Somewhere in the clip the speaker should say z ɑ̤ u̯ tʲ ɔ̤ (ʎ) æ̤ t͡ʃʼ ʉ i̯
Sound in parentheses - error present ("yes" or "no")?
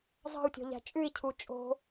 no